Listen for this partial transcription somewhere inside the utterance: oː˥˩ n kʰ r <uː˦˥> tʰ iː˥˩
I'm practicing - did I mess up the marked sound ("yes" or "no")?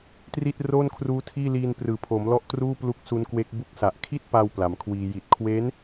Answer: no